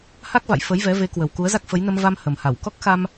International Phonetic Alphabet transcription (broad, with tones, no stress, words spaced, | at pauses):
ha˦˥k̚va̰˧˨j fə˨˦jvɛ˨˦ ve˨˦kwə˨˩wku˨˦ə̯ za˦˥k̚fə˨˦jnə˧mva˧m hə˨˩mha˧˩w kɔ˦˥k̚xa˧m